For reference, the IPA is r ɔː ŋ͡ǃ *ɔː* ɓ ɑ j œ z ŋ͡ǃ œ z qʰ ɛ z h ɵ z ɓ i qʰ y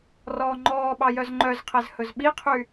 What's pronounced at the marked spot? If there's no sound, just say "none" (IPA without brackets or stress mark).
ɔː